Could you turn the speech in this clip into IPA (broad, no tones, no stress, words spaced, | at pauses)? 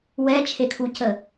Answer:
wɛt͡ʃʰekʰucə